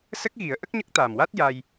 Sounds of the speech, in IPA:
sə˦˥k̚ɣi˨˩˦ə̯ ʔə˦˥k̚ɲə˦˥k̚t̪aː˨˩mwa˦˥t̚ ja˧j

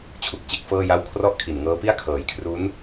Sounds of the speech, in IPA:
t͡ɕʰu˨˩k̚t͡ɕe˥˩k̚fɤː˥˩ja˥˩w kʰrɔ˥˩ʔkʰi˨˩nŋɤː˦˥pi˥˩a̯ kʰɤː˩˦jkʰru˦˥n

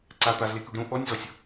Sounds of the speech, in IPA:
ǀa t̪azle kyɖɾũ ʔɔnʲzɔsʲ

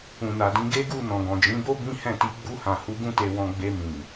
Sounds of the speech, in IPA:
ũ˨na˨dĩ˨˦ ɡe˦ɡu˦˨ nɔ̃˨ɡɔ̃˨d͡ʒĩ˨˦bo˦ bĩ˦hɛ̃˦˨ti˧ ɡ͡bu˧hã˨hu˨˦ ɡũ˦te˧wɔ̃˧ ɡ͡be˧ mĩ˨

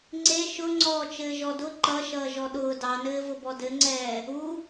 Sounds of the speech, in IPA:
ŋ͡ǀe ʃʊŋ͡ǀɔː t͡ʃɘːʒɔdʊ ǃʌʃʌː ʒɔɗʊː dɑnɘːvʊbɔ dɘŋ͡ǀɛː | u

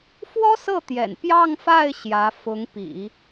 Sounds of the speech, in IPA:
fwɔ˥sɤ˥˩t̪jɛ̰˨˩n pjɑ˥˧ŋfa˥˩ɪ̯ ɕjä˧˥ fʊ˧˥ŋpḭ˨˩˦

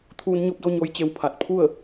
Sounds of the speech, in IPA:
t̪ʰuː˧n ɲo˧p̚do˧ ɲo˧˥jt͡ɕe˧wpʰa˧˩t̚ pʰu˥˨ə̯

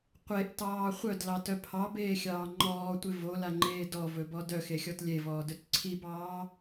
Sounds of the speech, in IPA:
qʷeʔtɑː χʷœdlɑtœ pʰɑbeːxʲɑː ŋ͡ǃɔːtʷɪ volaŋ͡ǃeː dɔvɵbɔ dœxexʲɔt lʲevɔːdɵt ǀʰibɑː

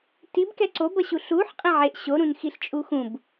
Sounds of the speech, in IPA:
tibkɛ ǀobʌɕu ɬuħ qʼẽʕeʔ ɕoɾũnxiɬ t͡ʃʼuxũb

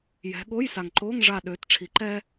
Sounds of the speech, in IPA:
jɛ̤˨˦ ɠo˧˥˧jsa˨ŋǃoː˧˥˧ŋ ʐa˦˨ ɗøː˨˦tʈ͡ʂʰi˨˩˦ǃɛː˥

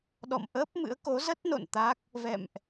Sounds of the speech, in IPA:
ɗɔ̰˧˨mʔəː˦˥p̚mɨ̰˧˥ə̯ ko˨˦zə˦˥t̚no̰˧˨n t̪a˦˥k̚ | vɛ̰˧˨mʔ

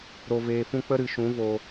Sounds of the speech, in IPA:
ɾo˧veː˧fũ˦ k͡pə˦ ɾɨ˨ʃũ˨˦ vo˧

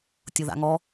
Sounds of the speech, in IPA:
tʲʊða̰ŋɔ

